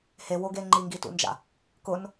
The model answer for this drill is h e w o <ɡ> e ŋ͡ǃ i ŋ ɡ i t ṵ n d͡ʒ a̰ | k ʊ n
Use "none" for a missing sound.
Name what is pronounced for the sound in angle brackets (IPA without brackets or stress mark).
ɡ